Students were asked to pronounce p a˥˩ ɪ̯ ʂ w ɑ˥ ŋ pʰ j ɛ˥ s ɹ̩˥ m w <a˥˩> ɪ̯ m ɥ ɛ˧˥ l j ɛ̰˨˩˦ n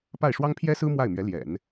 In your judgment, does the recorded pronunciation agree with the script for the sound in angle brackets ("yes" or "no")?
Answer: yes